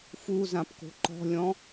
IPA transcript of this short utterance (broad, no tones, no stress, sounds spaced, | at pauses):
f u z ã p k o̤ ǃ ɔ̤ lʲ ɔ̃